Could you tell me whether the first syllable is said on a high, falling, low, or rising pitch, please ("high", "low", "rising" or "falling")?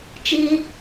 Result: high